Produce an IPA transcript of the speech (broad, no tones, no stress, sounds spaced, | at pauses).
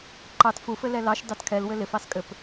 ǃ ɑ t f u f ɘ l ɛ l ɑ ʃ d ɑ t kʰ ɛ l w ɘ l ɪ f ɑ s kʼ ɘ p